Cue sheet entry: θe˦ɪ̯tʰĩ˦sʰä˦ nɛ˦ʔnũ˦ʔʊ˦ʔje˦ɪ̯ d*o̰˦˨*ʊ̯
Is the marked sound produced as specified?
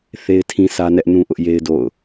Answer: yes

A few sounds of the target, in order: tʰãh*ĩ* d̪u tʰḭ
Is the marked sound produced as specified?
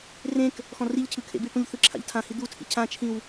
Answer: no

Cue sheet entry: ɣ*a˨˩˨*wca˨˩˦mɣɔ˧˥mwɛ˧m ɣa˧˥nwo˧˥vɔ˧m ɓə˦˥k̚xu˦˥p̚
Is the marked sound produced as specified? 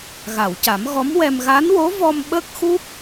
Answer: yes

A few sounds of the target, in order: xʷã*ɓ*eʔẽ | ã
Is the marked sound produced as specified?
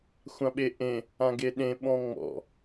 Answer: yes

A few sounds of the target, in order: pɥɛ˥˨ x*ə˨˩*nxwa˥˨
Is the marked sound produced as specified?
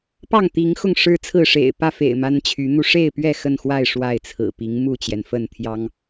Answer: no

